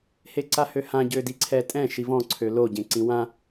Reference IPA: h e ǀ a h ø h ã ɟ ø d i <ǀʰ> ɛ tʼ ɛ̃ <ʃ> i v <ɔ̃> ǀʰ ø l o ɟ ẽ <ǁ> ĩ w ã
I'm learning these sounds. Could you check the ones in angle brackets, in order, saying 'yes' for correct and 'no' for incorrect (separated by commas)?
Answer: yes, yes, yes, no